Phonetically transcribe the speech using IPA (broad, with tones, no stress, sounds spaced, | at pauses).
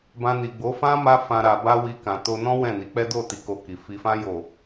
b ã˧ n i˨ ɡ͡b o˨˦ f ã˦ m a˧ f ã˨ ɾ a˨ b a˧ w i˧ k ã˨ t o˧ n ɔ̃˦ w ɛ̃˦˨ n i˨˦ k͡p ɛ˦ d o˦˨ t i˨˦ k o˧ k i˨ f i˨ f ã˧ j o˨